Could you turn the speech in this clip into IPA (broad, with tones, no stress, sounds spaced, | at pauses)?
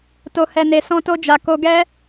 t o˨ h ɛ˨ n e˨ s ɔ̃˧ t o˧ d͡ʒ a˨ k o˧ ɡ ɛ˦